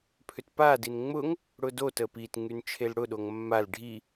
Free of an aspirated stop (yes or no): no